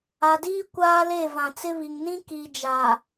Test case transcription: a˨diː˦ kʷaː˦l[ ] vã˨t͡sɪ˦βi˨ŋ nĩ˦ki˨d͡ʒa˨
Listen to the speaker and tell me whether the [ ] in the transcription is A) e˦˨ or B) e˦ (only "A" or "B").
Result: A